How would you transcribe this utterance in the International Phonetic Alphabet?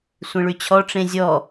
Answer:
sʷ ẽ ɭ y t͡ɕʰ ɔ ʈ͡ʂ ẽ zʲ ɔ

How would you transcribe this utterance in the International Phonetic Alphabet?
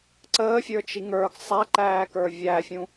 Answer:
ǀ əː fʲ ə˞ t͡ʃ i ŋ ə˞ ɡ sˤ æ ǃ æː k ə˞ vʲ æ fʲ ũ

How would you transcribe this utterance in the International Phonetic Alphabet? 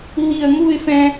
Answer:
ɦ i˧˩ ə̯ ŋ u˥˧ ɪ̯ f ɛ̃˧

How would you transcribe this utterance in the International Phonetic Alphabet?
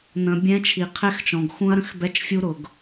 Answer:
n̪ ə̃˨ bʲ ɛ̃˦ t͡ʃʰ i˨ qʰ ɛ˦ x t͡ʃ ɔ̃˨ ɡ x ũ˦ ɐ̯ ɾ ə̃˦ x b ɛ˦ t͡ʃ fʲ u˦ ɾ ʊ˨ ɡ

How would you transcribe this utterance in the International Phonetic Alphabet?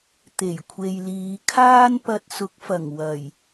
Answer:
t̪ e˨˩ j kʷʰ e˨ j l iː˨˧ kʰ aː˥ n p ɐ˧ t̚ s ʊ˨˥ k̚ f ɐ˨˩ ŋ w ɐ˨˩ j

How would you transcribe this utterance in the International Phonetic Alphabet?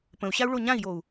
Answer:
p ə̃ u̯ ɕ a u̯ ɭ o ɲ ã i̯ j o u̯

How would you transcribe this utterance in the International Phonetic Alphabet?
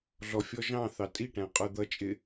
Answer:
ɮ ɔ fʲ ɔ ʒ ɑ̃ θ ɑ tʼ i ʈ æ̃ qʼ ə˞ d̪ ʌ t͡ʃʼ ɪ

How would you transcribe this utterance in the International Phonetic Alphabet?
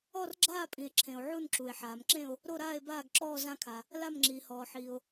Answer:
ɔ˥˧ r ɡ͡ǁ aː˥˧ pʼ ĩ˨ e̯ ǁʰ ẽ˨ o̯ ʕ u˥˧ n ǁ u˨ e̯ ħ aː˨ m ǁ ẽ˥˧ o̯ | ɾ o˥˧ ɾ aː˥˧ e̯ b aː˥˧ ɡ ǁ ɔː˥˧ z ã˥˧ kʰ a˨ | l a˥˧ m ŋ͡ǁ iː˨ h ɔː˨ ħ iː˨ o̯

